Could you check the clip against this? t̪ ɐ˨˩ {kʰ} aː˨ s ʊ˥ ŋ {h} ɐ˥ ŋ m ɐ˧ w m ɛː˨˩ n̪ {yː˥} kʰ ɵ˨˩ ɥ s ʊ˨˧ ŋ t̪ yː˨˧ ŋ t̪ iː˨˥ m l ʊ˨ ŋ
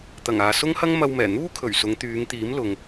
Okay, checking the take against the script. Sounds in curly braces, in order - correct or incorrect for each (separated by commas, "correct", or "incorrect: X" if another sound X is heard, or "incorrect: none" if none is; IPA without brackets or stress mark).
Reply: incorrect: ŋ, correct, incorrect: uː˥